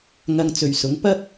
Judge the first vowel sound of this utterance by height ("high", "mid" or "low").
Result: low